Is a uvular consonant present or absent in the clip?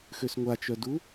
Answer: absent